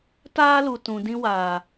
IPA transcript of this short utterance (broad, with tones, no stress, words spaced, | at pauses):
taː˦lu˨ tũ˨ dĩ˧waː˨